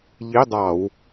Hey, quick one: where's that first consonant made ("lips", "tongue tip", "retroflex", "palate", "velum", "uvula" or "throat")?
palate